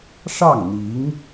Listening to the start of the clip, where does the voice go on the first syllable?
falling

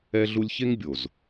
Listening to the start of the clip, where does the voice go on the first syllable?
high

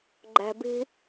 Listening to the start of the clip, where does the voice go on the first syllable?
low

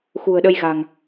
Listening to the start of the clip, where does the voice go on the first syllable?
low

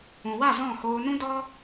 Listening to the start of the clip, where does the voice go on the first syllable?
low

